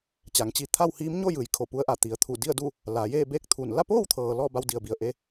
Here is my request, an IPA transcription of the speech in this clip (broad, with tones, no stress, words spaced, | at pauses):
t͡ɕa˩˧ŋt͡ɕi˧ t̪ʰa˥˨whiː˧˥m ɲo˥˨ jɯː˩jkʰo˧˩pu˧ə̯ʔa˧˩ t̪i˩ə̯t̪ʰu˧˩di˥˨ə̯du˥˨ | laː˩˧jeː˥˨beː˥˨k̚t̪ʰu˧˩n la˥˨poː˥˨wt̪ʰɤː˩ lɔː˥˨ba˧w di˩ə̯bi˩ə̯ ʔe˧